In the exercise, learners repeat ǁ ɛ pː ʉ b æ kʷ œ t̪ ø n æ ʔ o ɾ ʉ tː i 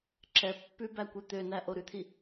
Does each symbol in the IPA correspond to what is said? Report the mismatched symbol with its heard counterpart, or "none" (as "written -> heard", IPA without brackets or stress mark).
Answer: tː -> t̪ʰ